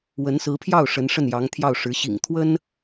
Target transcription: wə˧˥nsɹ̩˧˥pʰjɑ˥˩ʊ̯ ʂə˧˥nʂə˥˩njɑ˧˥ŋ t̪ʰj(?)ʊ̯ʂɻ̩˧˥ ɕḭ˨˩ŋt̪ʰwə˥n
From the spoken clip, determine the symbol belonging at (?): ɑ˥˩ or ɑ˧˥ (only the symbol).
ɑ˥˩